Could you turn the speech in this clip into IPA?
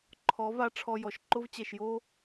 ǃʰɔ˨˦va˧ ʈ͡ʂʰɔ˧jɔ˨ʃ ǃʊ˦v t͡ɕɛ˨ʃjo˦

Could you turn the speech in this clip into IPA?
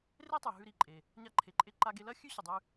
re˥tˤʉ˩ ɦʉ˧ɾi˩ǃʼe˩ | ɲa˧ǃʰe˩ǃʼe˧ ǃa˧ɡe˧lɐ˥ xʲʉ˥ɕu˩dˤʉ˧

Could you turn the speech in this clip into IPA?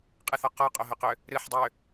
qʼɨθɔ qɔqʼoɦœqø | ɾɨħ dˤø

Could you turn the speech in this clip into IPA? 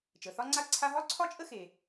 t͡ʃə˩θɒ˥ŋ͡ǀa˥ǀʰa˥ ɦɒ˥ǀʰɒ˥t͡ʃʼə˥xe˩

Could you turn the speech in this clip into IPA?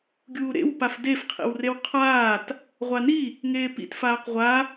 ɡʲuːɾḛwpaf defqʰḭwrew qʰaːt | ʁʷani | ŋeːpḭt faːqʁʷa

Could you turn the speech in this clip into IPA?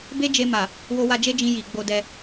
be˦d͡ʒe˧ma˨ | wo˧wa˧ d͡ʒe˦d͡ʒĩ˧ ji˨ ɡ͡bo˧dɛ˧

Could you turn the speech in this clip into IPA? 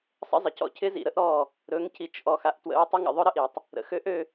sˤə̰˦zˤə˨cɔ̰˦ cʰɪ˦zḭ˨ɾə˦ʔ ɾɔ˦˨ | ɾɵ˨˦ŋci˨t͡ʃ ʔɔ˨xa˨ʔtwə̰˨˦ɹ tˤɪ˦ŋə̰˨ ðˤɵ˦ɾə˦ʔi˨tˤ | ɾə̰˨xø˦ʔ ø˦

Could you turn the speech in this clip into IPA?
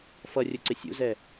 fʌrʲʊ ǀɪsʲṵzɛ

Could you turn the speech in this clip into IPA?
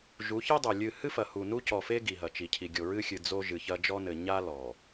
ʒu˨˦çɛ˦dˤo˨ lʲɨ˨hɨ˦fɐ˨ hu˨nu˦cɔ˨fe˦ ɡi˨ɦɐ˨t͡ʃi˨cʰi˨ ɡʲo˨ɹɨ˦xʲɨ˨ d͡zo˦ʒɨ˨çɐ˦ d͡ʒɔ˦nɘ˨ ɲa˦lɔ˨

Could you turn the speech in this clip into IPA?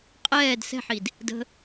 qʼɛːd sɛ̤ħid | də̤

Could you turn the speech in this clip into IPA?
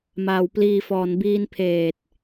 maː˩˦w pliː˨˩fɔː˩˦n biː˧npʰeː˨˩t̚

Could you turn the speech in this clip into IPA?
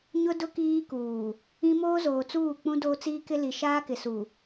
ɲʊ˦dʊ˦ kiː˦kuː˨ | ĩ˦ moː˦zoː˨t͡suː˦˨ k͡pũ˦doː˦t͡siː˦ kɪ˦li˨ ʃaː˦kɪ˨su˨

